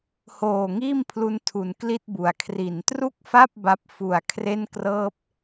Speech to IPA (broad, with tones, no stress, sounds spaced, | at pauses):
h oː˨˩ ŋ iː˥˩ m pʰ l u˧ n tʰ u˩˦ n k l i˥˩ t̚ b u˩˦ a̯ kʰ r i˩˦ n t r u˥˩ k̚ f a˥˩ p̚ b a˦˥ p̚ f u˨˩ a̯ kʰ r e˥˩ n k r ɤː˥˩ p̚